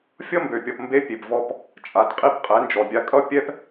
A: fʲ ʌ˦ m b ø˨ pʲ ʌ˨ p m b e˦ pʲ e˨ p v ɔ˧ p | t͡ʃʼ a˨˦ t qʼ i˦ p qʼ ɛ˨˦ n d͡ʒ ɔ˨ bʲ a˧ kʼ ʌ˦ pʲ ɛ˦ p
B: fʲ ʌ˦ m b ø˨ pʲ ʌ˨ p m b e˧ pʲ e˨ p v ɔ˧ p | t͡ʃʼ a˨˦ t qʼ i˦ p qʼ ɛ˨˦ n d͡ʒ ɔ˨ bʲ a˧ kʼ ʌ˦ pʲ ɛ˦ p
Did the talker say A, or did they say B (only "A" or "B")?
A